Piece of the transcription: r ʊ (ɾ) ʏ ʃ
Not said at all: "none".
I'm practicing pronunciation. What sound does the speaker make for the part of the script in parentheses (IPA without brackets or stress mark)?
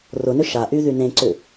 n